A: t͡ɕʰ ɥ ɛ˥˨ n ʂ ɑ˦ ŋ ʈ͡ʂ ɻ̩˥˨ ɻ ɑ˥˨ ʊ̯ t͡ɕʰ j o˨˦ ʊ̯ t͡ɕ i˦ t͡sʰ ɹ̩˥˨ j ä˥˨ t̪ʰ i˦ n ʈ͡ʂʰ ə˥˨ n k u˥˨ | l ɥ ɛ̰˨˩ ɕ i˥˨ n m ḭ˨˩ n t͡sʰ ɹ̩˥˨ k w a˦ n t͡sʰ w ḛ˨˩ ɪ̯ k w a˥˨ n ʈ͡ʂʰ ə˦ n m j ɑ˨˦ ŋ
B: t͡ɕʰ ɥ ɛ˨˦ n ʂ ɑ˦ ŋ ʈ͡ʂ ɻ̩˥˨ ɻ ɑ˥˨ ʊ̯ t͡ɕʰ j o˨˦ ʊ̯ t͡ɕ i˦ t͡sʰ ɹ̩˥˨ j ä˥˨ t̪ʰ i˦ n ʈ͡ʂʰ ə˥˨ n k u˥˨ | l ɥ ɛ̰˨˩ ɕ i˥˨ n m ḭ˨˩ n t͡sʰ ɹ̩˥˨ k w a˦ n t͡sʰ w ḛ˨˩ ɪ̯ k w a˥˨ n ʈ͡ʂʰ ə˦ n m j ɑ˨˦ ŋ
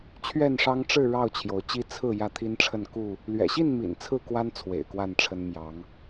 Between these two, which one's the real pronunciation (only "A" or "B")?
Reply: A